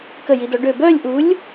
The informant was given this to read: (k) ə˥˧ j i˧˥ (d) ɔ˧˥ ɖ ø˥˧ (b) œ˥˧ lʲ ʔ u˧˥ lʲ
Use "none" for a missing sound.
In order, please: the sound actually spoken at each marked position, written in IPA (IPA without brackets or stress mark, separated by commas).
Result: k, d, b